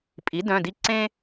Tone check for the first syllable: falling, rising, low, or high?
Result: rising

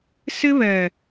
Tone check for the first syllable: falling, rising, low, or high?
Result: high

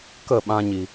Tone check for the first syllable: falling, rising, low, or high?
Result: falling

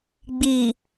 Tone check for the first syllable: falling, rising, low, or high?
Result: low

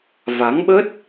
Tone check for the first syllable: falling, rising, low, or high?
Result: rising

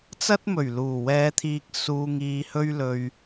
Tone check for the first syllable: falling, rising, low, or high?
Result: high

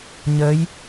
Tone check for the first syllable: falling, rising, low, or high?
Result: rising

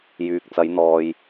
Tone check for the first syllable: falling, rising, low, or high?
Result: low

